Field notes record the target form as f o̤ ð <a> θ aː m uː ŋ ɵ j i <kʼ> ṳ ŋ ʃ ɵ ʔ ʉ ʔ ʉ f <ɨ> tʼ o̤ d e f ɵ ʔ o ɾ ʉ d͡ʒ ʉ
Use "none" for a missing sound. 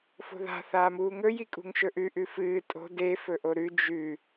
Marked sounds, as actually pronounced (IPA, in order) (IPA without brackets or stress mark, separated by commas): a̤, kʼ, ɨː